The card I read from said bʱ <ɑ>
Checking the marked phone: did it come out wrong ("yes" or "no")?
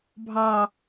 no